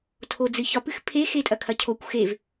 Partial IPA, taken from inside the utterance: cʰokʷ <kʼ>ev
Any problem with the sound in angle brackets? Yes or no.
yes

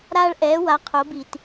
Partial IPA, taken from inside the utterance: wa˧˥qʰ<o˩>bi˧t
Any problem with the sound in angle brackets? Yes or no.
yes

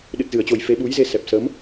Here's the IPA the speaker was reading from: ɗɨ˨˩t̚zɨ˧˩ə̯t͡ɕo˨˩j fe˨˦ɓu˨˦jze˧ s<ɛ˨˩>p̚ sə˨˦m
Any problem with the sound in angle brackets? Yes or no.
no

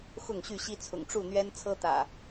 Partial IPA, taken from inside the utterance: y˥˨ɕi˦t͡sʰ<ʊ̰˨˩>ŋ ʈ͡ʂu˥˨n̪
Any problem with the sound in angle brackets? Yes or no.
no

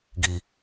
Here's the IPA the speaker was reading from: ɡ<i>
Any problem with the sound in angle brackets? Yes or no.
no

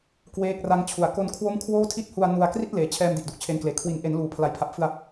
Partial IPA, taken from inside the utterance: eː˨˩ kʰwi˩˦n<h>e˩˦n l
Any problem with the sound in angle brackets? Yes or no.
yes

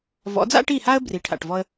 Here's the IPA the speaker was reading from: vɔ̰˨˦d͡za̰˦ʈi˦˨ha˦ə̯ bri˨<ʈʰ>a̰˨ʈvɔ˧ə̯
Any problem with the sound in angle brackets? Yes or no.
no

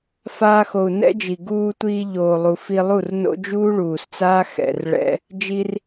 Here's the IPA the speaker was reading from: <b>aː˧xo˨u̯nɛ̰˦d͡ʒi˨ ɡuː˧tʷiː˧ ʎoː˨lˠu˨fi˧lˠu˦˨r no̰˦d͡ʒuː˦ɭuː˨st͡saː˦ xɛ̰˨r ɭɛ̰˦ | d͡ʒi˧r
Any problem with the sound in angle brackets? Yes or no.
yes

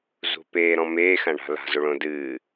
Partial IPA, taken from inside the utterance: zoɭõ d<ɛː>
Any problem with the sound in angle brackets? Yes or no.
yes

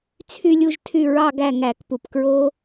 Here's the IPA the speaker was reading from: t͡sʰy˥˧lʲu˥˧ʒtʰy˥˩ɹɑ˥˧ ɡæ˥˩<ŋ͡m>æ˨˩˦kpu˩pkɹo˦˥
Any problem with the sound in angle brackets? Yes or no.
yes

